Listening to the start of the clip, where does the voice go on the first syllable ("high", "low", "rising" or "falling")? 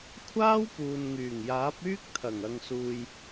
high